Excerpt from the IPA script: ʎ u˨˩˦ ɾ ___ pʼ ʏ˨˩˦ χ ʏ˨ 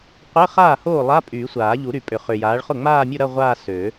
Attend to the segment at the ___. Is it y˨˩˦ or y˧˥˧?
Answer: y˨˩˦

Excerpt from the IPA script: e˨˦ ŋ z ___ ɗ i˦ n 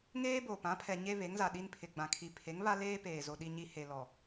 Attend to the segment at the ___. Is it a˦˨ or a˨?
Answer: a˨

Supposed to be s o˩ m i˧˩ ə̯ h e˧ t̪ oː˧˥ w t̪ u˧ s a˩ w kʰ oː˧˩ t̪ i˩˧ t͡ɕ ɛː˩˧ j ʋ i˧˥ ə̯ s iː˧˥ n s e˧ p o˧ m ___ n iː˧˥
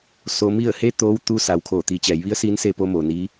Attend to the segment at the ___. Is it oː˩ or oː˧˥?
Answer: oː˩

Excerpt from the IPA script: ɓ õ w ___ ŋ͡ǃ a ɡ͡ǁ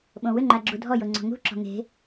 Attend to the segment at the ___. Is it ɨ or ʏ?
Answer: ʏ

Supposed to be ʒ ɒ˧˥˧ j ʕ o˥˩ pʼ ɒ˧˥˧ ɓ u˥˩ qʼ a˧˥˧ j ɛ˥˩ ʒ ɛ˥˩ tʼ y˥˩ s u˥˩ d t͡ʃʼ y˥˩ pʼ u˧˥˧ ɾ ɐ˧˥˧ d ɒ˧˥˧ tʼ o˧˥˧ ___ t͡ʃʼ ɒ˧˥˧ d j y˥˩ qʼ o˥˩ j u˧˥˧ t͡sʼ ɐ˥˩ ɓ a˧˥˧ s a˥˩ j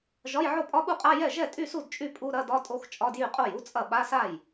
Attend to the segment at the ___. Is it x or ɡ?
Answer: x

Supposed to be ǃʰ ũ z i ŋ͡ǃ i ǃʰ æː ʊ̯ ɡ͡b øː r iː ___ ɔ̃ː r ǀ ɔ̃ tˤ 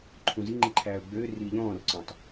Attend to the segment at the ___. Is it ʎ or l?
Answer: ʎ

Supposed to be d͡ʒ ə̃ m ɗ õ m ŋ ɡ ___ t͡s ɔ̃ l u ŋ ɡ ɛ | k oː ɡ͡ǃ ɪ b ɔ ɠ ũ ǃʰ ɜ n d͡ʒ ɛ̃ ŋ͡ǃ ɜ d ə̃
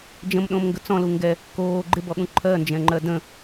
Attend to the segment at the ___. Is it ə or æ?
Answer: ə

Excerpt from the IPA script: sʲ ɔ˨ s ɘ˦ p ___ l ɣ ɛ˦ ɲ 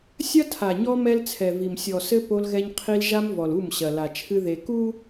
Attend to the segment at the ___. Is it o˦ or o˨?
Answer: o˦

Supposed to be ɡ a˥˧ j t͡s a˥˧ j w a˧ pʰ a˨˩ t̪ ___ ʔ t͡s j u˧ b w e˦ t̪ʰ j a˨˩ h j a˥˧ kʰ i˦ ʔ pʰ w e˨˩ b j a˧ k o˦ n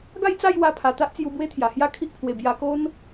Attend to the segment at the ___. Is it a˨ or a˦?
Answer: a˦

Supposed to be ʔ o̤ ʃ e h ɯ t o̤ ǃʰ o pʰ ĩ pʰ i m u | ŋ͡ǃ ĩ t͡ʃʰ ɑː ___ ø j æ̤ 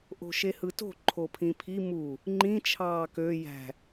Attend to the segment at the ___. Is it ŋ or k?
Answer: k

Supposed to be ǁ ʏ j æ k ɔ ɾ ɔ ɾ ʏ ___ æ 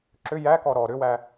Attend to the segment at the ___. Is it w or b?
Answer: w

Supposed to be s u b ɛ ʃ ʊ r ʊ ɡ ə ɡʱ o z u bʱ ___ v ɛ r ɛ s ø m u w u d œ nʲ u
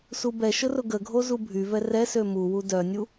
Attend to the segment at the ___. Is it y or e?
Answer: y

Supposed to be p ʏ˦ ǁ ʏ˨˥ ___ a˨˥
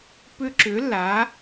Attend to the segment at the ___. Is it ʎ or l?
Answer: l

